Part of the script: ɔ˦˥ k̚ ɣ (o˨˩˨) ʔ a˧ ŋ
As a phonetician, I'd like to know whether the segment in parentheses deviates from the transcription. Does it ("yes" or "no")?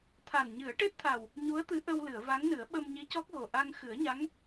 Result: yes